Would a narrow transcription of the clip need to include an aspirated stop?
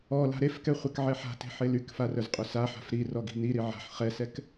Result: no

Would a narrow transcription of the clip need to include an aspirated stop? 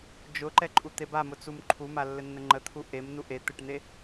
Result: yes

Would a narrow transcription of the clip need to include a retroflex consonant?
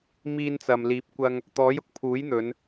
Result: no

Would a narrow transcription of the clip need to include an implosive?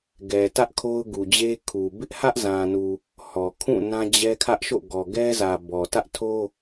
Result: no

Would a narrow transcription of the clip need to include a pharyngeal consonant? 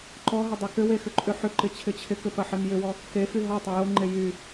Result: yes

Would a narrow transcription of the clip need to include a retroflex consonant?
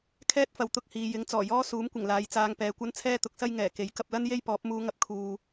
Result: no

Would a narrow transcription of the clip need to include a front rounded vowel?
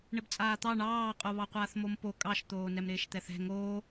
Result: no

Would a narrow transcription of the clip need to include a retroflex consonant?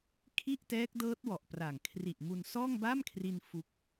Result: no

